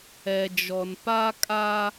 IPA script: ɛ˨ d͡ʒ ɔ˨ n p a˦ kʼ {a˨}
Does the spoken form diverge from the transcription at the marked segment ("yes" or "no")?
yes